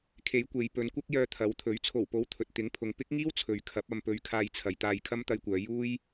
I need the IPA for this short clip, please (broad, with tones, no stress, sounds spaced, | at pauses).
kʰ e˨˥ j kʷ e˨˧ j p ɵ˨˧ n kʷ ɐ˥ k̚ j œː˧ t̪ʰ ɐ˨˥ w t̪ʰ ɵ˨˥ ɥ t͡sʰ o˨˩ w p o˨˥ w t̪ʰ ɵ˨ t̚ t̪ ɪ˨˥ ŋ pʰ ʊ˨ ŋ p ɪ˥ k̚ ŋ iː˥ w t͡sʰ ɵ˨ ɥ kʰ ɐ˨˥ p̚ ɐ˧ m p ɵ˧ ɥ kʰ aː˧ j t͡sʰ ɐ˨ j t̪ aː˧ j kʰ ɐ˥ m t̪ ɐ˧ j kʷ œː˨˧ j uː˥ j